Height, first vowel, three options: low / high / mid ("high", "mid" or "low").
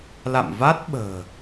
low